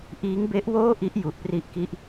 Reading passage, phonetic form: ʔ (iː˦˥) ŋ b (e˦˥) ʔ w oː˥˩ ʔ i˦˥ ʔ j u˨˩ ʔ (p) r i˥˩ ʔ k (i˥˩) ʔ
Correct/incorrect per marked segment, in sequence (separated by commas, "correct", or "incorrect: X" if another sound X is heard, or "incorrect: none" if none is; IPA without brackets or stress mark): correct, correct, correct, correct